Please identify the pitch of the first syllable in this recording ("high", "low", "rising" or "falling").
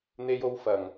high